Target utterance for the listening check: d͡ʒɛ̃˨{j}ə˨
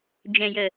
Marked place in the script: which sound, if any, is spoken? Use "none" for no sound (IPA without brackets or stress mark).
j